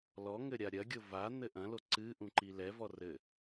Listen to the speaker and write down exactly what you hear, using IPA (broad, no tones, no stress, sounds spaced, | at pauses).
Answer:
l ɔ ŋ ɘ ɾʲ a ɾʲ ɐ ɡʲ o v a n̪ ɘ ʔ ɐ̃ l o ǀ ɨ ʔ ũ ǃ i l ɛ v ɔ r ɘ